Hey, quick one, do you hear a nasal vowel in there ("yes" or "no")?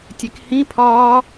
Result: yes